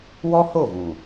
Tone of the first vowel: high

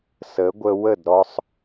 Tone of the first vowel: rising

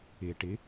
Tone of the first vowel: low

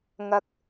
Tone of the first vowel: high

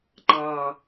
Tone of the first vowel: low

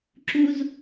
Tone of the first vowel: high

